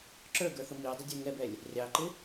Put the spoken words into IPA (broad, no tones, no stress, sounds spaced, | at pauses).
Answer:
ǁ ə˞ ɡ ə˞ θ ʊ m i o̯ dˤ ə dʲ ə˞ ŋ ɛ b ɛ lʲ | rʲ ɑ ǃ ɪ